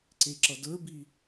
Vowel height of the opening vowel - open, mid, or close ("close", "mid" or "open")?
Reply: mid